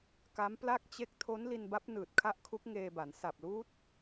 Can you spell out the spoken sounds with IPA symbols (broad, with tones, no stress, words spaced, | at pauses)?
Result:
ka˦˥mpla˥˩k̚ t͡ɕe˦˥k̚ tʰo˦˥n li˧nba˦˥p̚nɯː˨˩t̚ kʰa˥˩ʔkʰu˦˥k̚ŋeː˧ba˩˦n sa˨˩p̚luː˦˥t̚